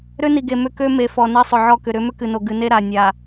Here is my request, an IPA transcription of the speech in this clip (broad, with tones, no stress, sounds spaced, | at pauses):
ɾ ø˦ n i˨ ɡ e˨ m ʏ˦ k ø˦ m e˨ f ɔ˨ n e˦ sˤ ʏ˨ ʕ ɔ˦˨ k ʏ˨ ɾ ʏ˨˦ m ʏ˦ k ɨ˨ n o˨ ɡ ɨ˨ n e˦ ɾ a˨ nʲ a˨